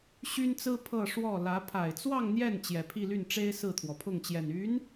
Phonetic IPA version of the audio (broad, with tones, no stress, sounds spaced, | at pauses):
ɕ y˥ n t͡s ɹ̩˥ pʰ ɤ˥˧ ʂ w ɔ˥˩ l ä˧˥ pʰ a˨˩ ɪ̯ t͡s w ɑ˥˧ ŋ n̪ j ɛ˥˩ n t͡ɕ j ɛ˨˩ pʰ i˥˧ l y˥˩ n ʈ͡ʂ e˥ ɪ̯ s ɹ̩˥˩ t̪ʰ w ɔ˩ pʰ ʊ˥˩ ŋ t͡ɕ j ɛ˨˩ n y˧˥ n